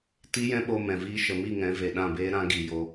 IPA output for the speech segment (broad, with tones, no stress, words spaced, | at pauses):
ti˦jɛ̃˦ɓo˧ mɛ̃˨viː˦ ʃə˨mi˦˨ŋɛ̃˨˦ ve˨ɗã˦˨beː˦ ɾã˦ ɡi˧jo˦